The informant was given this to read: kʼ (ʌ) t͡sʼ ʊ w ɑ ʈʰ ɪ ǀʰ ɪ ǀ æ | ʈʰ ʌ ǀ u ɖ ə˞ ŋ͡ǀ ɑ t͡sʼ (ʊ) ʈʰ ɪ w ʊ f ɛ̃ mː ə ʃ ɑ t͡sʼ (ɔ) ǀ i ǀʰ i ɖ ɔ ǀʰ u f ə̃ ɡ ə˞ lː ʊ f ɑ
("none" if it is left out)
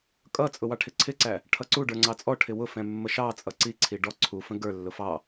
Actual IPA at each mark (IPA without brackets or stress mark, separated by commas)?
ʌ, ɔ, ʌ